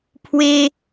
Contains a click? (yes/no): no